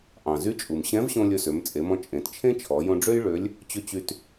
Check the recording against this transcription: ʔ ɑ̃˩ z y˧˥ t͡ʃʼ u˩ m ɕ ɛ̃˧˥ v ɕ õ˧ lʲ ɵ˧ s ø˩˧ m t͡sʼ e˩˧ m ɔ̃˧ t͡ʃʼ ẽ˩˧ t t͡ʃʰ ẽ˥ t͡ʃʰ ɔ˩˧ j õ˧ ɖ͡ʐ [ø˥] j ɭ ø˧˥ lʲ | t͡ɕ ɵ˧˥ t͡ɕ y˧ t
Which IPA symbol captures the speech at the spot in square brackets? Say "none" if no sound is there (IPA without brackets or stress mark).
ø˥